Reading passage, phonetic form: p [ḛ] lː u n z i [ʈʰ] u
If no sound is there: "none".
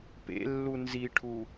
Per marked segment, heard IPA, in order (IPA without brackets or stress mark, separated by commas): ḛ, ʈʰ